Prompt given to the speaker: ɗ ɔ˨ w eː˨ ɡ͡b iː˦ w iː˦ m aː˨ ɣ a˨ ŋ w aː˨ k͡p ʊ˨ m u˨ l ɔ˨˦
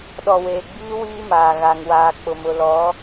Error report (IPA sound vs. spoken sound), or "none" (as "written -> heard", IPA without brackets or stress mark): u˨ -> ʊ˨